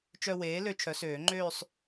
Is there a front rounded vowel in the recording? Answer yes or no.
yes